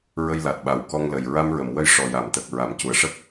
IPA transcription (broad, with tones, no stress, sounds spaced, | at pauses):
ɹ ə˧ j l a˨˩ t̚ ɓ a˨˩ w k ɔ˧ ŋ l ə˨˩ j ɹ a˧ m ɹ ə˨˩˨ m w ə˧˥ j ʂ ɔ˨˩ j a˨˩˨ m t̪ ə˨˩ k̚ ɹ a˨˩˨ m c u˨˩ ə̯ ʂ ə˦˥ k̚